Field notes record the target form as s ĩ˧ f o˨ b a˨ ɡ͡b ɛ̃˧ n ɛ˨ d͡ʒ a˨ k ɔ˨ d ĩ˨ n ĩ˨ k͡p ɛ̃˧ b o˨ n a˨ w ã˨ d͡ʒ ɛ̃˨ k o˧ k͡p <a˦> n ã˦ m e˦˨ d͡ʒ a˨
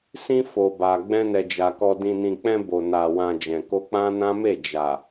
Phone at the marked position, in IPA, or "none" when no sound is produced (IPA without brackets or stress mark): ã˦